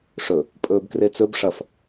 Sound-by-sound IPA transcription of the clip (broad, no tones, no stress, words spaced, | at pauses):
ʂɵ | pʼɵːbkret͡sɵb ʂɐf